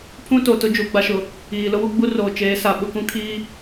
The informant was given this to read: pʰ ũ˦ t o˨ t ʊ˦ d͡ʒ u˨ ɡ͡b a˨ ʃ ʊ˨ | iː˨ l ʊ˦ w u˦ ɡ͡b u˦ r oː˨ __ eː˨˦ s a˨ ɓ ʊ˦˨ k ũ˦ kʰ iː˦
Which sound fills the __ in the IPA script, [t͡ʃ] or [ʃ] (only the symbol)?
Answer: t͡ʃ